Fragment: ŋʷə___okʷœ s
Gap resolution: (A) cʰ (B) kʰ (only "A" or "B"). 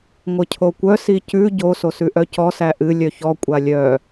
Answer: A